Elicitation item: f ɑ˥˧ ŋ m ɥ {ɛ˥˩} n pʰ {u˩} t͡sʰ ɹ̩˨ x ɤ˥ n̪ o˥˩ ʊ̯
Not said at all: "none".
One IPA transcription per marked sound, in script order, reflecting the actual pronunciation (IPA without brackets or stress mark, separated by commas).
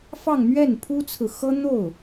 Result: ɛ˥˩, u˥